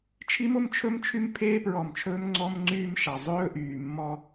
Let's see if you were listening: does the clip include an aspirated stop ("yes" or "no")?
yes